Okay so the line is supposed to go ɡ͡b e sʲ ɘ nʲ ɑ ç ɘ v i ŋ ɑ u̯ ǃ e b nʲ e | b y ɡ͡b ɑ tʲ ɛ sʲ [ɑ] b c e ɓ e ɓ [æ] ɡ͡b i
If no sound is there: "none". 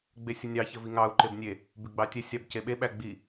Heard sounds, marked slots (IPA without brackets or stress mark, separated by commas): ɑ, æ